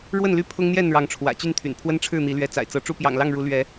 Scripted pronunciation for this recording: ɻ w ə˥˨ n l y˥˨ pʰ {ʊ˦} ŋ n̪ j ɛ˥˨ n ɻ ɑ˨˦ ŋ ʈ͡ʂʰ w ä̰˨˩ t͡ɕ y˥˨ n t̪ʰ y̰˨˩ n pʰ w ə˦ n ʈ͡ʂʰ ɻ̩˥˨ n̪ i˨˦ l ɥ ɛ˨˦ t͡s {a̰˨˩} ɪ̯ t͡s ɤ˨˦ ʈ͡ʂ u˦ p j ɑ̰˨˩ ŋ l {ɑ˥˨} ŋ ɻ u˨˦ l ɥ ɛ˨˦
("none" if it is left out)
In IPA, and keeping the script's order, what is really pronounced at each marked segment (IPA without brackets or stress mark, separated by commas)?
ʊ˦, a̰˨˩, ɑ˥˨